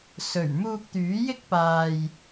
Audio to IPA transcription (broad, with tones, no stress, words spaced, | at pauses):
sɵ˨˩ɥ muː˧k̚t̪yː˨˥jɪ˥k̚ paː˨j